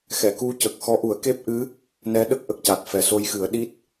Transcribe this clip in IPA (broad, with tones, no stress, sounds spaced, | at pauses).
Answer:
x ɛ˨˩˨ k u˧ c ə˨˩ k̚ x ɔ˧˥ ʔ u˨˩˦ ə̯ k e˦˥ p̚ ʔ ɨ˧˥ | n ɛ˧˥ ɗ ə˦˥ k̚ ʔ ə˨˩ k̚ c a˨˩ t̚ f ɛ˨˩ s o˧ j x ɨ˨˩˦ ə̯ ɗ i˦˥ t̚